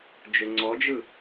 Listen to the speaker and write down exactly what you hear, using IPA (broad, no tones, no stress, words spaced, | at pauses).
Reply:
d͡ʒʊŋ͡ǀɔd͡ʒɯ